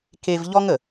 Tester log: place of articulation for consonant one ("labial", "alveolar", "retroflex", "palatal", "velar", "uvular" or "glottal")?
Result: velar